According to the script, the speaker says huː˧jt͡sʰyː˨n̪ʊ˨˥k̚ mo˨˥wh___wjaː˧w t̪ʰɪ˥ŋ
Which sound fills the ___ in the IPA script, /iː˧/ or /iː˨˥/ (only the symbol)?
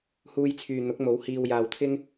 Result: iː˧